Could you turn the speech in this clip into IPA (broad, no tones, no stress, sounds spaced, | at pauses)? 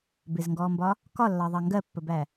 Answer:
b ɪ z ŋ ɡ ɔː m b ɒ | k ɒ lː ɑ ðˤ ɑ ŋ ɡ ɜ pː ə b æ